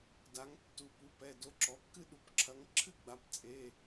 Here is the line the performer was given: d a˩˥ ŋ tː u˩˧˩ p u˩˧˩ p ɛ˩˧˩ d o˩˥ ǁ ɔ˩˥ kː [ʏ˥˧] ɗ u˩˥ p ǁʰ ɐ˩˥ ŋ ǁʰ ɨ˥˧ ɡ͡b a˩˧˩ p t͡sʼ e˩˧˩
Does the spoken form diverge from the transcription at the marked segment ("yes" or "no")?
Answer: yes